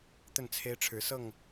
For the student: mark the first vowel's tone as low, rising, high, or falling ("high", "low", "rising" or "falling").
falling